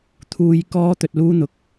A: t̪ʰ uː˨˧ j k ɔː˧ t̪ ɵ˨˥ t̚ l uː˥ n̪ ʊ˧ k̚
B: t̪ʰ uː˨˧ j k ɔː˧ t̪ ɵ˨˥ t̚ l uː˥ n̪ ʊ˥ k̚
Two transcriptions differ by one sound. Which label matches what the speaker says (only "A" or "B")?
A